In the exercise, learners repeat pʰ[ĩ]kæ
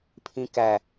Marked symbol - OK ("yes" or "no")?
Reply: yes